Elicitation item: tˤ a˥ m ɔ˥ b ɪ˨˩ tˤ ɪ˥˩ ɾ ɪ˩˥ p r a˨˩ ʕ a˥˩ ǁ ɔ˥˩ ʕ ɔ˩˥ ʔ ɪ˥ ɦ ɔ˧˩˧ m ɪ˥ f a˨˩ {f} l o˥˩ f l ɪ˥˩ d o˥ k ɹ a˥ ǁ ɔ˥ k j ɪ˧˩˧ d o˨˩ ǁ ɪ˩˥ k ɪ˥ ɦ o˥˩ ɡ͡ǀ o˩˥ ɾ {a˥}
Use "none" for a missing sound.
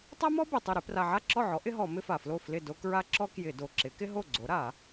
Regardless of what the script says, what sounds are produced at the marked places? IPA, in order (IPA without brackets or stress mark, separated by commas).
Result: f, a˧˩˧